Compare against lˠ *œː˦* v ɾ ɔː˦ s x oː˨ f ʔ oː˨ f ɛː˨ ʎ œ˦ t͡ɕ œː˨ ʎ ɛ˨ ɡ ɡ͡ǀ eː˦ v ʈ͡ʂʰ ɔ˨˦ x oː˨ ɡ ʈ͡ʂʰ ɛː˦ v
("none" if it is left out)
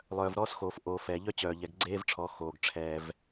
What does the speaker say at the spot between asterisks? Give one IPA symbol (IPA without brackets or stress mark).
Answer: œː˨